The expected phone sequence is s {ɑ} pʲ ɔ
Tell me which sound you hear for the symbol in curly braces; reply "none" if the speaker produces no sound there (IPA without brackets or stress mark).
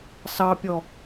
ɑ